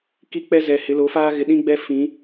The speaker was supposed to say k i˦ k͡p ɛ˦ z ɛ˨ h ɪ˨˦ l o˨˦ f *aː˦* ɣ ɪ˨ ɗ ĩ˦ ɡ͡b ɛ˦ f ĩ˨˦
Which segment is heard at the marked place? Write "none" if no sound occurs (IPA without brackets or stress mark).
aː˦